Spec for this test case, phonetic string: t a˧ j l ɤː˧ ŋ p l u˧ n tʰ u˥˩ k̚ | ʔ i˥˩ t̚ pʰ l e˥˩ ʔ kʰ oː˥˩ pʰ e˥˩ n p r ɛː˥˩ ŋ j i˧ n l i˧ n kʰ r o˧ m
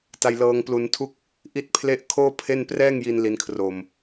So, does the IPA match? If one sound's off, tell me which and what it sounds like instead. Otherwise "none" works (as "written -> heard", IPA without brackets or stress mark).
none